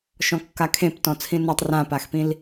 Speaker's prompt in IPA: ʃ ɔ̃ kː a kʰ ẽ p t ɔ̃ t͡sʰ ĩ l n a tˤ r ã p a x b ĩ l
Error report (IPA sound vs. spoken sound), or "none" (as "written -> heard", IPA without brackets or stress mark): b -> p